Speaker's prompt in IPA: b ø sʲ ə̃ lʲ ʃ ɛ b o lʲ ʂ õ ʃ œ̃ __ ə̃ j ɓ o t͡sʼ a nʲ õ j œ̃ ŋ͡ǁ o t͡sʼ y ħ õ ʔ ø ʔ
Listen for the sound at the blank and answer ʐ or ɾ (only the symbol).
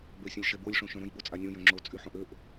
ɾ